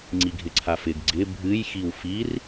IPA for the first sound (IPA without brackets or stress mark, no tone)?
ŋ͡ǀ